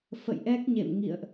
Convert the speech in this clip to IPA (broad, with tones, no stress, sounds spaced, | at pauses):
f ə̰˧˨ j ʔ ɛ˦˥ k̚ ɲ ḛ˧˨ m ŋ ḭ˧˨ ə̯ ʔ